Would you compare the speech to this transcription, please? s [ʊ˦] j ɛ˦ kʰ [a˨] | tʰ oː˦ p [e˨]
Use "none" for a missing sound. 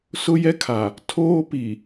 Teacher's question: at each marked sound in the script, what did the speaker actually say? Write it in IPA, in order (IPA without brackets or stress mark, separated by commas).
ʊ˦, a˨, i˨